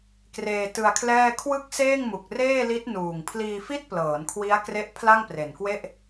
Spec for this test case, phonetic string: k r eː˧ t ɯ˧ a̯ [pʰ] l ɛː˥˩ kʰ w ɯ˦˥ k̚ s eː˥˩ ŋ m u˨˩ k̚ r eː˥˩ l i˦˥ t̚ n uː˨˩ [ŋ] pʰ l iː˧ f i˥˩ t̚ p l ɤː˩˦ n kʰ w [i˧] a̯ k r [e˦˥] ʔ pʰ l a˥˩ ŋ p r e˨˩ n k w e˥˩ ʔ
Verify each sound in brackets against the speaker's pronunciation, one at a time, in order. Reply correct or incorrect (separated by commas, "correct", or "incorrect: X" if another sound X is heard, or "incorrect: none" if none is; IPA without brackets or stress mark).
incorrect: kʰ, correct, incorrect: i˦˥, correct